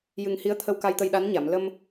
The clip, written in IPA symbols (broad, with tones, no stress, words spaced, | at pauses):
jɨ˨˩ŋ hi˧˥ə̯t̪ʰə˧w ka˧jt̪ə˧jɗa˧˥nɲa˨˩˨m lə˧m